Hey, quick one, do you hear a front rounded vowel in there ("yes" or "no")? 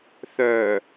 yes